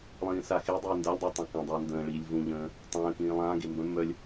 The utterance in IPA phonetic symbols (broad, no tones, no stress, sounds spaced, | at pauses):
lˠ ĩː s a x e dˤ iː n d a lʲ dˤ i tˤ ã k ə̃ dˤ əː n d ə̃ː ɭ iː lʲ v ũ ʎ ə̃ː | tˤ ə̃ː k ĩː lˠ ãː ɡ e m b œ̃ mː œ lʲ